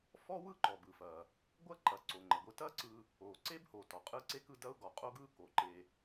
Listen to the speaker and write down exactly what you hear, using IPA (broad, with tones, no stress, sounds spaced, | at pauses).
f ɔ˥ w ɯ˥ ǃ ɔ˩ b ɯ˩ f ɐ˩ | ɡʷ ɐ˥ ǃ ɐ˩ ǀ o˩ ŋ͡ǃ ɐ˩ ɡʷ ɯ˧ t ɐ˥ ǀ ɯ˧ | o˩ ǀ e˥ b h o˩ t ɔ˩ qʼ ɯ˥ ǀ e˥ k ɯ˧ d ɐ˥ ʊ̯ ɡ ɔ˩ qʼ o˥ ɡ ɯ˥ k o˩ ǃ e˧